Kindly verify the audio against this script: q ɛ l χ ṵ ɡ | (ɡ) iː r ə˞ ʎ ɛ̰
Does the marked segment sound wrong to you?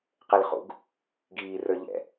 no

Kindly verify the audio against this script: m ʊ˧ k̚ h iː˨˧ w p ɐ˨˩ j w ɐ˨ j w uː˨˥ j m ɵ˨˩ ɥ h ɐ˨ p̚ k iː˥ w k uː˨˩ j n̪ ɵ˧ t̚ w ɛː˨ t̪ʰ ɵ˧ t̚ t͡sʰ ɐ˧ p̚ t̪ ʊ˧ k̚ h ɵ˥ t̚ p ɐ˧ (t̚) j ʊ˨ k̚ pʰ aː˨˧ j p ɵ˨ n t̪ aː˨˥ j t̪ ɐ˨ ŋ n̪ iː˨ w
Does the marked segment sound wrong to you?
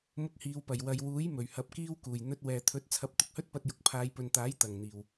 no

